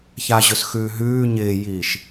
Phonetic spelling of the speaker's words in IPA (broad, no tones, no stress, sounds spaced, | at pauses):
ç a ʑ ɵ s x ʉː ɦ ʉː ɲ ɪː j iː ʃ